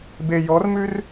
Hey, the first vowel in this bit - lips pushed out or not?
no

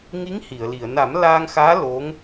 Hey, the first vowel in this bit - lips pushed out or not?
no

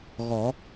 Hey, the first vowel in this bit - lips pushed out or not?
yes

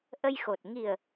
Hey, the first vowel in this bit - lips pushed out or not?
no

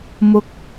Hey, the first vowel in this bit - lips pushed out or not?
yes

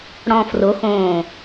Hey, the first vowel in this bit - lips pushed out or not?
yes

